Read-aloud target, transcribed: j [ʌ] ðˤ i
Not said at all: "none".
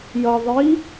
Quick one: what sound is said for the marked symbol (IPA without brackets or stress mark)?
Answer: ʌ